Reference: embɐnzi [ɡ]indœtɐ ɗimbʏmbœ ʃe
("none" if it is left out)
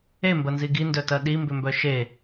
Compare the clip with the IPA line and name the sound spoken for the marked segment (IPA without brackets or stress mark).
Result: ɡ